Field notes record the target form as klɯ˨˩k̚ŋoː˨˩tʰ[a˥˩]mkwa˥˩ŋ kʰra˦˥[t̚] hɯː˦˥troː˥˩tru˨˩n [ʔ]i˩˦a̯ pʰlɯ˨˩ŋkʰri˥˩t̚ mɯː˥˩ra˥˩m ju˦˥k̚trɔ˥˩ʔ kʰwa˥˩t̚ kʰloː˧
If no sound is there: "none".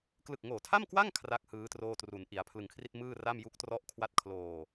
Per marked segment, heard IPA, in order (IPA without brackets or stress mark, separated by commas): a˥˩, k̚, ʔ